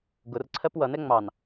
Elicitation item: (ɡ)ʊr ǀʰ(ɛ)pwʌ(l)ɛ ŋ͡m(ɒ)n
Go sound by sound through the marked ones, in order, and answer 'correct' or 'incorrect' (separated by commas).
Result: correct, incorrect, incorrect, incorrect